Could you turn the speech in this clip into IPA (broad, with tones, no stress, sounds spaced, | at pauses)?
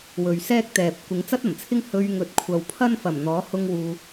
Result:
w ɵ˨ ɥ s ɛː˥ k̚ t̪ ɛː˨ p̚ kʷ ɪ˨˧ ŋ t͡s ɐ˥ t̚ ɐ˨˩ m t͡sʰ ɪ˥ ŋ h ɵ˧ ɥ ŋ ɵ˨˥ t̚ kʷʰ ɐ˨ w pʰ ɐ˥ n f ɐ˨˩ m n̪ ɔː˨˥ h ʊ˥ ŋ w uː˧